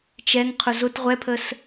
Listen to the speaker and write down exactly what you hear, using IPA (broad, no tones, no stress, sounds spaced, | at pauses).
t͡ʃ ɛ ŋ qʰ ʊ z ʊ t ʁʷ ɛ pʰ ə s